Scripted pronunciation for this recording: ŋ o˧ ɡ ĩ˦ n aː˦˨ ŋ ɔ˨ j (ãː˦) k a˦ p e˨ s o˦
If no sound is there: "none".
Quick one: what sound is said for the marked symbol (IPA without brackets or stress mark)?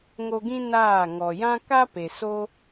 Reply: ã˦